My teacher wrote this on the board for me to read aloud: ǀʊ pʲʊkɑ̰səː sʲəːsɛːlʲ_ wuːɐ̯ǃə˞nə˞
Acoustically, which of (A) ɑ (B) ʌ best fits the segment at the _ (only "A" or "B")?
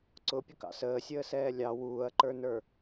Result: A